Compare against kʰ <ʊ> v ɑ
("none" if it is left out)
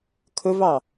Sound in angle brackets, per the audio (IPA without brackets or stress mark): ʊ